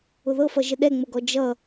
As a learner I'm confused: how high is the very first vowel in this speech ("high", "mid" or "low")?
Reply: high